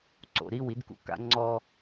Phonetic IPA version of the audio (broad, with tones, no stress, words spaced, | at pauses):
ǀo̰˨ɾi˦˨w i˦dkṵ˦ka̰˦ ŋ͡ǀɔ˦